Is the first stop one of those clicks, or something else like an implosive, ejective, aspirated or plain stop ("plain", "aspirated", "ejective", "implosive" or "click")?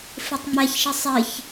plain